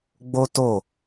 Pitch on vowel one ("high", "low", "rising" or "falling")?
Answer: high